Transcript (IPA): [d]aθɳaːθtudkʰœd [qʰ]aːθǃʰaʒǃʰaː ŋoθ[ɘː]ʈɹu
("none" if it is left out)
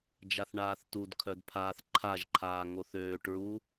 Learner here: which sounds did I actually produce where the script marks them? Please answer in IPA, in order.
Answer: d͡ʒ, pʰ, øː

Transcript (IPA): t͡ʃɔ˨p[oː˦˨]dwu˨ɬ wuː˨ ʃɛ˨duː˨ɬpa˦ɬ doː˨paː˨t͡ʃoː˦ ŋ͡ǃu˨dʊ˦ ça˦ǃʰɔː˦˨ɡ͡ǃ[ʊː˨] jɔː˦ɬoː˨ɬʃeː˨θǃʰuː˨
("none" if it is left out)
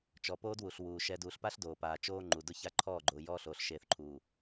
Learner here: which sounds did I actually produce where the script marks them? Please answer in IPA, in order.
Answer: oː˦, ʊː˨

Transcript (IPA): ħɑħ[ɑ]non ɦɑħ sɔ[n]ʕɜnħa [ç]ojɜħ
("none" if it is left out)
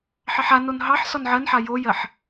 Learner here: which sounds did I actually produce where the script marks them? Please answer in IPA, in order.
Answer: a, n, j

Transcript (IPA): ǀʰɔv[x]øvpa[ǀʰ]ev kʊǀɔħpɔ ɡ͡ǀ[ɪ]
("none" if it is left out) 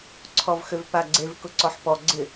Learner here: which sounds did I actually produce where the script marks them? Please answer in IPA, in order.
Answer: x, ɡ͡ǀ, ɪ

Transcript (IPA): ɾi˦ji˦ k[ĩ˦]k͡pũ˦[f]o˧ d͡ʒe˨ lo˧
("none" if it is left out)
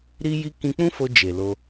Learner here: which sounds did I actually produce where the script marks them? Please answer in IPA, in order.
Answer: ĩ˧, f

